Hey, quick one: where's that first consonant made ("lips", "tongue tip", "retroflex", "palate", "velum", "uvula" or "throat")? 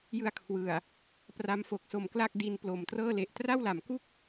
palate